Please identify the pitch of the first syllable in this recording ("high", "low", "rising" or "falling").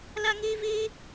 high